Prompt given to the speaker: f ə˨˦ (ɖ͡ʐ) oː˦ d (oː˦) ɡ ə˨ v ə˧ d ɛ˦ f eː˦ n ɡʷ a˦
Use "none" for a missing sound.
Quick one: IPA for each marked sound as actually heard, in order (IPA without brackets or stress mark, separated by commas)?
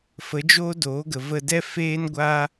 d͡ʒ, oː˨˦